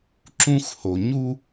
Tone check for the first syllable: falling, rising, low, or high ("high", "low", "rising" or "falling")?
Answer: high